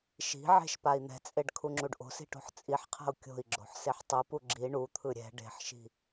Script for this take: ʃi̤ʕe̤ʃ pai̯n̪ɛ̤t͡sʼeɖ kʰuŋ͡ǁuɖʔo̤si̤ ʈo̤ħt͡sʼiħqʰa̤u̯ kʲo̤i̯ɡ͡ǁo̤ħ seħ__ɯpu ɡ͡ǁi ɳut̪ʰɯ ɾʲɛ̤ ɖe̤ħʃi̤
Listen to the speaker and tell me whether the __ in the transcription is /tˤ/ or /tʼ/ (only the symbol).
tˤ